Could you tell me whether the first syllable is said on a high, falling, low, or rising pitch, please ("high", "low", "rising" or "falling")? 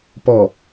low